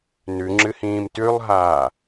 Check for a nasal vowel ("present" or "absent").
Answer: present